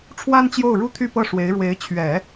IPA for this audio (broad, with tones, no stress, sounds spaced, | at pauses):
ʈ͡ʂʰ w a˥ n t͡ɕ j o˥˩ ʊ̯ ɻ u˥ t̪ʰ y˥˧ p ɤ˥˩ ʂ w e˧˥ ɪ̯ ɻ w e˧˥ ɪ̯ t͡ɕʰ ɥ ɛ˨˩˦